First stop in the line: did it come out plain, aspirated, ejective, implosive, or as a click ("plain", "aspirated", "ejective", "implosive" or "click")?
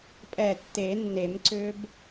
ejective